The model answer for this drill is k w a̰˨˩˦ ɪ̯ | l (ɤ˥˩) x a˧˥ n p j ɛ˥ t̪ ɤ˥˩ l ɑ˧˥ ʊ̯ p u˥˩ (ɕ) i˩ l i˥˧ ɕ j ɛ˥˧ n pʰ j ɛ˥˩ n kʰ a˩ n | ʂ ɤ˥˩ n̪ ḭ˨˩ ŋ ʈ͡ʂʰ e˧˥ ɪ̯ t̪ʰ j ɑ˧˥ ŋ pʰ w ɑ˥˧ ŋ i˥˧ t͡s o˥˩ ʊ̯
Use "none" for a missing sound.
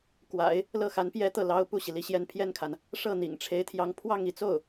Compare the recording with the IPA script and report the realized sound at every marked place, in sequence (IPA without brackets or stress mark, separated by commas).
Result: ɤ˥˩, ɕ